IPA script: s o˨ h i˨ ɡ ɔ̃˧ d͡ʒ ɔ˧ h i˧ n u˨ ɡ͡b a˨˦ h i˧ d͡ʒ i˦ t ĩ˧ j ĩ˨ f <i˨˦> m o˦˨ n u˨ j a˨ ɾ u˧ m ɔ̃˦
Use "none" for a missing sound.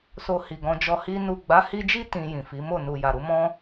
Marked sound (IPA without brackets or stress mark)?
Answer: i˨˦